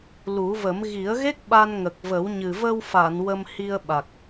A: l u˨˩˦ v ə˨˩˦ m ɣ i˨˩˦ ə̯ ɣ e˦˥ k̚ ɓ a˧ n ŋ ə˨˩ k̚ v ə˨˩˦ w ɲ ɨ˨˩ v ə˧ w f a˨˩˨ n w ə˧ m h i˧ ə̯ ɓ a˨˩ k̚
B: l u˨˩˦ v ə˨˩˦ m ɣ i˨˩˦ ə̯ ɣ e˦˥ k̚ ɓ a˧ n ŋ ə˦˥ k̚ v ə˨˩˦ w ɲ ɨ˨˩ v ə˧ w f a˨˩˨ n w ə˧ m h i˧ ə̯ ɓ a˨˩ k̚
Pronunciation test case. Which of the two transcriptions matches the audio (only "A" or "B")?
A